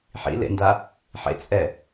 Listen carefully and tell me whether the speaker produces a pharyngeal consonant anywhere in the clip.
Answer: yes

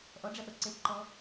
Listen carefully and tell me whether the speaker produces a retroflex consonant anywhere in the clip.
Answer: yes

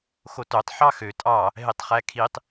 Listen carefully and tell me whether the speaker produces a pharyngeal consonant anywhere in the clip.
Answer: yes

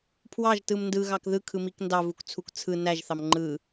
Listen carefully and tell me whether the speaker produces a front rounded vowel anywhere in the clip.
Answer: no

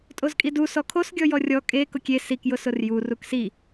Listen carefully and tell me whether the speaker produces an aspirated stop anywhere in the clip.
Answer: yes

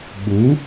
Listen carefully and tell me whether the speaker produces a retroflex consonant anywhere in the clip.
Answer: no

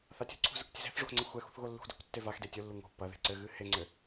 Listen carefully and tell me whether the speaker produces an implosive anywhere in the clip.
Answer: no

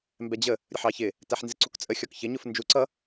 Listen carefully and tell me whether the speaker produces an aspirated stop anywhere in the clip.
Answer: no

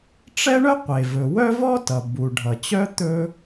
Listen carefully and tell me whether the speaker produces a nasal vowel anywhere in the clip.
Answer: no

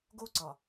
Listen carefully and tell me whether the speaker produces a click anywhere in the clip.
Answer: yes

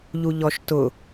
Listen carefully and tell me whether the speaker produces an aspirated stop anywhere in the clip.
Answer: no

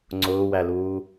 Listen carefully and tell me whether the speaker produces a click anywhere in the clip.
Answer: yes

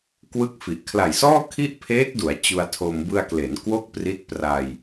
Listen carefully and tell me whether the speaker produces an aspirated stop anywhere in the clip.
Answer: yes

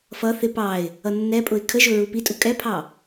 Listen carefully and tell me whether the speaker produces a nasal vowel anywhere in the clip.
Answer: no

